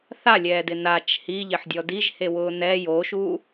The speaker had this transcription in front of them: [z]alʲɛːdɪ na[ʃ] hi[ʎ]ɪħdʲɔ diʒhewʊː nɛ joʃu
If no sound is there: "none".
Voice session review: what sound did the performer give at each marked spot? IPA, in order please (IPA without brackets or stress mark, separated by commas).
θ, t͡ʃ, ʎ